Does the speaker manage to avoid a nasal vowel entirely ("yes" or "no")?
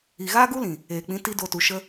no